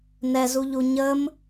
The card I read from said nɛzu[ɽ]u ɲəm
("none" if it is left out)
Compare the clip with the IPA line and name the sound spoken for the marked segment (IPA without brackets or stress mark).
ʎ